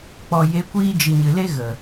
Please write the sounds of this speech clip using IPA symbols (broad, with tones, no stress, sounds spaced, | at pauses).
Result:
k͡p ɔ˨ j e˨˦ kʷ iː˧ d͡ʒ ɨ˨ ɲ ɨ˨ l e˦ ɣ ə˨